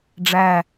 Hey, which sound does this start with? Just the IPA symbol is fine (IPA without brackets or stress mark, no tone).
ɖ͡ʐ